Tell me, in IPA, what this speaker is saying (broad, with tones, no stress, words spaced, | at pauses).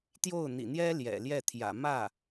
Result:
t̪jo˥˩ʊ̯n̪ḭ˨˩n̪jɛ˥ ljɛ̰˨˩ljɛ˥˩t̪ʰjä̰˨˩ mä˥˩